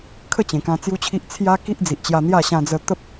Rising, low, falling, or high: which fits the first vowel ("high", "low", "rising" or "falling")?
falling